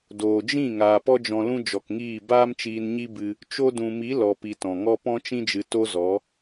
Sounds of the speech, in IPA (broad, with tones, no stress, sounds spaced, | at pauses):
d oː˨ d͡ʒ ĩ˦˨ ŋ aː˨ p ɔ˦ d͡ʒ ɔ̃˧ l ũ˦ d͡ʒ ɔ˨ k ŋ iː˦˨ b aː˦ m t͡ʃ iː˧ n ɲ i˦ b ɨ˧ | t͡ʃ o˦ d ũ˧ m i˨˦ l ɔ˧ p i˧ t ɔ̃˨ ŋ ɔ˦ p ɔ̃˦ t͡ʃ ĩ˦ d͡ʒ ɨ˧ t o˦ z ɔ˨˦